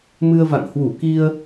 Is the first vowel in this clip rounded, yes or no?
no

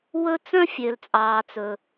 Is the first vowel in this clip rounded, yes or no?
yes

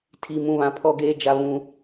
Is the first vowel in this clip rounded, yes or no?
no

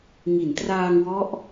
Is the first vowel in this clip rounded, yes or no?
no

